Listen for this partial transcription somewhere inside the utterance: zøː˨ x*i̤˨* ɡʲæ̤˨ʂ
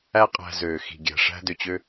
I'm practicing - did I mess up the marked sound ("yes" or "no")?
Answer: no